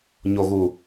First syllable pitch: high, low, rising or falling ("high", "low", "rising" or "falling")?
low